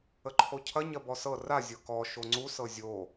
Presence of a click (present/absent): present